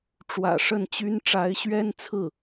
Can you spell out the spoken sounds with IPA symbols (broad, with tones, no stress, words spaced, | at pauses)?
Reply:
ʈ͡ʂwä̰˨˩ʂə˥˩nt͡ɕy˥n ʈ͡ʂa˧˥ɪ̯ɕɥɛ˥nt͡sʰɹ̩˥˩